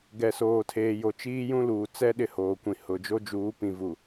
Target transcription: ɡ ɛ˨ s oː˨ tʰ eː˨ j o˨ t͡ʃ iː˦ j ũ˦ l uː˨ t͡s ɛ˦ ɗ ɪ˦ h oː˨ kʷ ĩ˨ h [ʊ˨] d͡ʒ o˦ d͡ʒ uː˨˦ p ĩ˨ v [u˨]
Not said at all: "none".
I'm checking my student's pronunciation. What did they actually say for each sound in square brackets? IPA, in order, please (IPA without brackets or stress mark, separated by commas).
ʊ˨, u˨